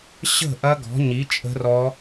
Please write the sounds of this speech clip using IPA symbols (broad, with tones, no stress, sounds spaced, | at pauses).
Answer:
ɕ ə̤˦˨ ʔ ɐ˦˥ ɡ ɔ̤˨˥ ɲ i˨˥ t͡ʃʼ ə̤˦˥ r ɔ˦˥